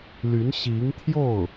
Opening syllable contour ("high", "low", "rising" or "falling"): rising